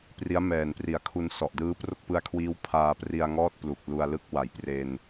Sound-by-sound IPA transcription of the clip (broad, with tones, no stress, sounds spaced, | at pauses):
p r i˦˥ a̯ m ɛː˨˩ n p r i˩˦ a̯ kʰ u˧ n s ɔ˨˩ ʔ d ɯː˦˥ p r o˥˩ k̚ p ɯ˦˥ a̯ kʰ w iː˦˥ w pʰ aː˧ p r i˧ a̯ ŋ ɔː˥˩ t̚ p l u˨˩ k̚ l u˧ a̯ l ɯ˥˩ k̚ w a˩˦ j p r e˧ n